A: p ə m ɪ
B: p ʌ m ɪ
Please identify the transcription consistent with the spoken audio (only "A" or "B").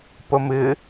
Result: A